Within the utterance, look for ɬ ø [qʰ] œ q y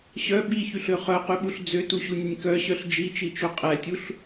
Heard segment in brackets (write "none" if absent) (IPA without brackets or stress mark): χ